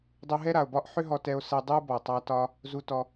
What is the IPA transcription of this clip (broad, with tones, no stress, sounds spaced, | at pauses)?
dˤ u˧ ɦ ɛ˥ ɾ a˩ o̯ b ɒ˥ ʔ ħ ʏ˥ ɦ ɔ˧ t ɛ˧ o̯ s ɛ˧ dˤ u˥ b ɔ˩ tˤ a˧ t ɒ˧ | z u˧ t ɔ˧